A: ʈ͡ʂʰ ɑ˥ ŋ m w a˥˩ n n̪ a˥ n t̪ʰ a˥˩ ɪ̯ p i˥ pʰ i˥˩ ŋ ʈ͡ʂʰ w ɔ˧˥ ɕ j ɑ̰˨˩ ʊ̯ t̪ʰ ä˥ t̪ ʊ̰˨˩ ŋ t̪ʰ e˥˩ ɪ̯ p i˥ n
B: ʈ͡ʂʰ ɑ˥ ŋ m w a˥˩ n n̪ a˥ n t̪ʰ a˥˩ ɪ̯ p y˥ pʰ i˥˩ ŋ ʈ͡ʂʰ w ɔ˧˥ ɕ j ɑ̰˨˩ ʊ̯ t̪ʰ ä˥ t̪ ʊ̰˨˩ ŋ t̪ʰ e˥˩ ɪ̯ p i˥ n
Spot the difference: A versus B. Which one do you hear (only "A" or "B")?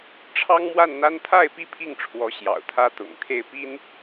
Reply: A